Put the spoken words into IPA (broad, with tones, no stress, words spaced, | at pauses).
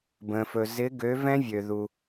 bə̃˩fɵ˩ zɪ˨˦ɡø˨˦ vɛ̃˦˥vʲø˩ðu˩